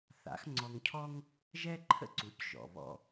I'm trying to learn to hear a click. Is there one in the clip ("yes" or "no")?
yes